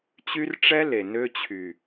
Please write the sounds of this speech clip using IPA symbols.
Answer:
t͡ɕ y˦ r ʈ͡ʂ ɛ˦ l e˨ n ø˦ t͡ɕʰ y˨

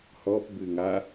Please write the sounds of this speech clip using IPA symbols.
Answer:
h ɔ p b ɨ ŋ a

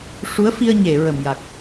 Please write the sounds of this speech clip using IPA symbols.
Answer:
ʂ u˧˥ ə̯ f i˧ ə̯ ɲ e˨˩˨ ɹ ə˨˩ m j a˨˩ k̚

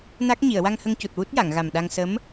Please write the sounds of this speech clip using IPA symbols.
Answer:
n a˦˥ k̚ ɲ i˨˩˨ ə̯ w a˧ ŋ h ə˧ ŋ c u˨˩ t̚ w u˦˥ t̚ j a˨˩˨ ŋ ɣ a˨˩ m ɗ a˧ ŋ s ə˧˥ m

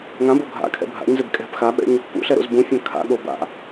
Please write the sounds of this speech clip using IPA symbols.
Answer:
ŋ ã b o ɡʱ a̰ kʰ ɛ̰ bʱ a̰ ɲ z ɪ b kʼ ɛ̤ p x a ɓ ɛ̰ ɲ | p ṵ ɬ ɛ ɾ o̰ z b ũ fʲ ã kʰ a̰ ɠ o b a̰

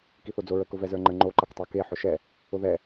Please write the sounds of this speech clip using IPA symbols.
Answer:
k i θ o d͡z o ɹ ə k ʊ v ɛ z ə˞ ŋ͡ǃ ə ŋ͡ǃ o ǃ ʌ k tˤ ə˞ k e ħ ʊ ʃ ɛ | ʊ ð ɛ

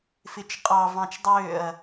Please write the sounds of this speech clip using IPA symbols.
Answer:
f ɪ t͡ʃ qʼ ɑ v ɑ̃ t͡ʃ dˤ øː ɐ̯

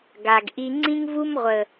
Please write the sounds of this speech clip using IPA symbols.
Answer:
ɡ a˨ ɡ ʔ i˧ ŋ͡ǀ ĩ˦ ŋ v u˦ m ʁʷ ə˨

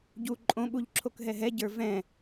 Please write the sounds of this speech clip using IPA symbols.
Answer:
ɟ u ǃʼ õ ɓ u ʎ ǁʰ o k ɦ ɛ ɦ ɛ ɟ ə˞ v ɛ̃

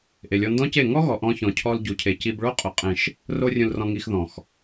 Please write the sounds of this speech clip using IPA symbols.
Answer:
ʔ e˨ lʲ ɔ˧ n d ɔ̃˦ c e˦˨ ŋ ɔ˦ ɣ ɔ˨ ʔ ɔ̃˧ ç ɔ̃˨ cʰ ɔ˧ l ɟ u˨ cʰ e˨ c i˧ b ɭ o˦ qʼ ʊ˨ qʼ ẽ˨ ʃ | r o˧ rʲ ũ˨ l r ɔ̃˨ ŋ i˨ x ð ɔ̃˨ x

